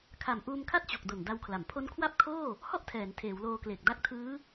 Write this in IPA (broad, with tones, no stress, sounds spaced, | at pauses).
kʰ a˨˩ m ʔ uː˧ m kʰ a˥˩ t̚ t͡ɕ o˨˩ k̚ d o˨˩ n d a˧ w kʰ l a˩˦ m pʰ o˦˥ n kʰ w a˥˩ p̚ kʰ oː˥˩ | h ɔ˥˩ ʔ tʰ ɛː˩˦ n tʰ eː˩˦ w l oː˧ k l e˨˩ k̚ d a˦˥ k̚ tʰ ɯː˦˥